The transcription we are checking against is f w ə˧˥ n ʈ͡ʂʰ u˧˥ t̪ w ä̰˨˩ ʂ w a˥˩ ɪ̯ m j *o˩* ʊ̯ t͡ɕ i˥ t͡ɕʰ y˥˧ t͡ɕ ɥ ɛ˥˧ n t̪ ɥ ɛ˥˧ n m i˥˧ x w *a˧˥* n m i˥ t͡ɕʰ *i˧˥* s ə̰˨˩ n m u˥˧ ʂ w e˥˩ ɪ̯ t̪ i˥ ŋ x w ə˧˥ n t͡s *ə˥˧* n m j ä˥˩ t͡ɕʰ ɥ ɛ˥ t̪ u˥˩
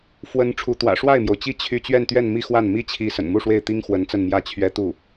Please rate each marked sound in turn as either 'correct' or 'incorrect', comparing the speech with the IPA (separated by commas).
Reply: correct, incorrect, correct, correct